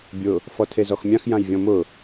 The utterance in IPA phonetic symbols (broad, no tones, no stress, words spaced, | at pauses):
bʲʊ | fɔtʰezɔxmʲãx jãjvʲɔ̃mʊ